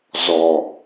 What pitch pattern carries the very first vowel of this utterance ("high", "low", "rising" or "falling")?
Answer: low